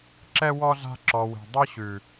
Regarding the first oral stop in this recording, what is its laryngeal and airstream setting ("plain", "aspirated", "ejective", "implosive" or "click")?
click